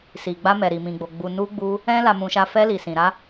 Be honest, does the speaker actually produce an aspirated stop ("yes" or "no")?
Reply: no